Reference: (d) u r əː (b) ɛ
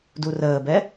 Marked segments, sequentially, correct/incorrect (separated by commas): correct, correct